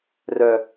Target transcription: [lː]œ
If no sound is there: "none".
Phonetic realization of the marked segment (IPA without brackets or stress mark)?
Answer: r